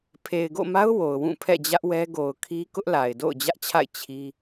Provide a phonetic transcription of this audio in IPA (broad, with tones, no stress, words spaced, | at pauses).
pʰe˨ɪ̯ɡo̰˦˨ma˦ʊ̯ wo˨ʊ̯wũ˦˨ pʰɛ̰˦˨d͡ʑä˦ʔwɛ˦ ɡo˨ʊ̯kʰi˦ kʊ˦ʔla˨ɪ̯ do̰˦˨ʊ̯d͡ʑä˦ʔt͡ɕʰa̰˦˨ɪ̯ t͡ɕʰi˦